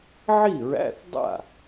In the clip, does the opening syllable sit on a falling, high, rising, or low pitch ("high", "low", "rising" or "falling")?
falling